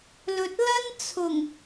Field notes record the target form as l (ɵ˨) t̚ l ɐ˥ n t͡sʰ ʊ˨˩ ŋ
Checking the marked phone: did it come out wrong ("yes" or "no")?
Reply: no